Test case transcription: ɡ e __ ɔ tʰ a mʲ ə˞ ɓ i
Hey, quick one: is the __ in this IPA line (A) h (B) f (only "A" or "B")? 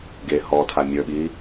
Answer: A